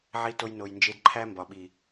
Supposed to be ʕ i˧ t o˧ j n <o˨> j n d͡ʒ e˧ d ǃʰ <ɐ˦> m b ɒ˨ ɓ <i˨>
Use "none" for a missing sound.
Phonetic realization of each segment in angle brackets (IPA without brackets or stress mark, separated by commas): o˨, æ˦, i˨